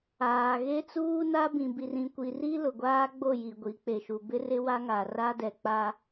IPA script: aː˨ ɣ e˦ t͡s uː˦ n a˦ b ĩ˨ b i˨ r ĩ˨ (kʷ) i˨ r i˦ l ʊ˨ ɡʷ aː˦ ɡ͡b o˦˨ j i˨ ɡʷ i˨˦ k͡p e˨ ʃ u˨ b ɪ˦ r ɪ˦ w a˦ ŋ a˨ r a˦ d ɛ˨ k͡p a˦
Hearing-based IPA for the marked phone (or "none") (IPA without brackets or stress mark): kʷ